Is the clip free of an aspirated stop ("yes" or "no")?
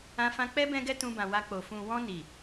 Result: yes